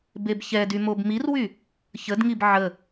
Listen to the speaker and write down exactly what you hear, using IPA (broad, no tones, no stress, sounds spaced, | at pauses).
b e b ç ɛ d y m o b m i r w y | ç ə d ŋ i b ʕ ə